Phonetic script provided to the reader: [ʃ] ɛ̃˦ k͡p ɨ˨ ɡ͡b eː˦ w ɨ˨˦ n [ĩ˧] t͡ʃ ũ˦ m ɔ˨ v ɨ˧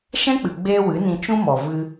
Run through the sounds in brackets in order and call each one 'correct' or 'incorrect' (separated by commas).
correct, correct